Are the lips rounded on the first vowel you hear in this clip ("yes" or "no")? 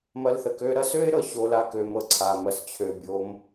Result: no